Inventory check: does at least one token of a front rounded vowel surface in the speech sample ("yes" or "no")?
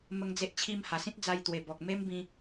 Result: no